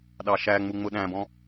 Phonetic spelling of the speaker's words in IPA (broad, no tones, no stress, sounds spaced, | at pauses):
ɗ ɑ ʃ æ ŋ͡m u ŋ͡m ʊ ɗ æ̃ b ɔ̃